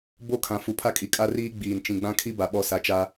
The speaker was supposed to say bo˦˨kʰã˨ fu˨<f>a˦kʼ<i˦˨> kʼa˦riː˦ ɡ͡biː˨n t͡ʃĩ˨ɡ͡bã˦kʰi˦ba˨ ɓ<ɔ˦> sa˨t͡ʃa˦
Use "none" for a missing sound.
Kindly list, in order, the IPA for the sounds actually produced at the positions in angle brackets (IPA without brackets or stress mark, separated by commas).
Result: pʰ, i˨, ɔ˦